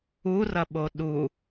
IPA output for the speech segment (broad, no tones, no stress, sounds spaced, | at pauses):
u r ɐ ɓ o ɗ u